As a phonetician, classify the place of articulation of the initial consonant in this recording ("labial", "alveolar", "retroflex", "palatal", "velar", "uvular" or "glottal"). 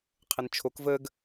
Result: uvular